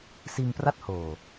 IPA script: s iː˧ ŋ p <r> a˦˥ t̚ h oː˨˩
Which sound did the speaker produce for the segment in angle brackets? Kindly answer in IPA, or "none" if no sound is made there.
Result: r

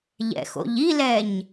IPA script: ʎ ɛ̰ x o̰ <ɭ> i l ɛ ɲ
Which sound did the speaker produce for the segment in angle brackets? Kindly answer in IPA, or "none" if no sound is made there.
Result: ʎ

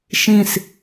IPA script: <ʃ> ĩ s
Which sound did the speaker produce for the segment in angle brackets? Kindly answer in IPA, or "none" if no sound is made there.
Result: ʃ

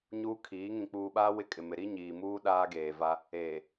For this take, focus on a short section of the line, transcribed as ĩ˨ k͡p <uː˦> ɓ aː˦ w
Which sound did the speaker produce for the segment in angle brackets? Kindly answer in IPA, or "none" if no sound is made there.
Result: uː˨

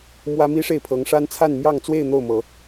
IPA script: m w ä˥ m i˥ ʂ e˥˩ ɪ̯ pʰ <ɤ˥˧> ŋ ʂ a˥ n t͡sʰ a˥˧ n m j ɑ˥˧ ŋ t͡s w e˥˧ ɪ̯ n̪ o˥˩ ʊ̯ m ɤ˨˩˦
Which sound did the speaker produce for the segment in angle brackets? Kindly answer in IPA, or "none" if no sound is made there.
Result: ɤ˧˥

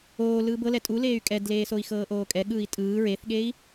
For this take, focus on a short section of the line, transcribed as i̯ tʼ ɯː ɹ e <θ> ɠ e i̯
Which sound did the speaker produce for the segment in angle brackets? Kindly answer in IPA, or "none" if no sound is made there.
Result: θ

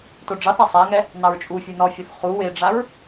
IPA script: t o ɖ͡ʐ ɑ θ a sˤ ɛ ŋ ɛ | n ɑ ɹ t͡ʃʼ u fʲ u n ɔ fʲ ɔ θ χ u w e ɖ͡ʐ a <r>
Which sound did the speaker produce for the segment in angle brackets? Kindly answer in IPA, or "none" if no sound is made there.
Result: ɹ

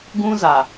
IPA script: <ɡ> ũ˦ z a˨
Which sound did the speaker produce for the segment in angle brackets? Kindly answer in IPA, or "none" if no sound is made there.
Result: ɡ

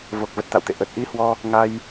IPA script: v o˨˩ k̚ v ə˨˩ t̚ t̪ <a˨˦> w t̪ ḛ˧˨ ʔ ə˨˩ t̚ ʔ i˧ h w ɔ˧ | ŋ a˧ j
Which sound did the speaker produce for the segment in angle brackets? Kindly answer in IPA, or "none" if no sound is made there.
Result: a̰˧˨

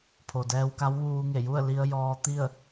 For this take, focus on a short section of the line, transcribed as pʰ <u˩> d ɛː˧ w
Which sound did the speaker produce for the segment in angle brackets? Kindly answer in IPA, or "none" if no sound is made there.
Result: o˩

